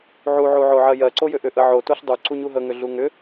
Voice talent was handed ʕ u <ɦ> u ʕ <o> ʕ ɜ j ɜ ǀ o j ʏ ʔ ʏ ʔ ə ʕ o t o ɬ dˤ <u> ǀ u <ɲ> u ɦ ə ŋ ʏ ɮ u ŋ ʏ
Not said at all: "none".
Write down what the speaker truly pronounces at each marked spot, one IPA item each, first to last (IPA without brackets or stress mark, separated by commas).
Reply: ʕ, o, u, ɲ